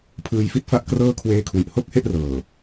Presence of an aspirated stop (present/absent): present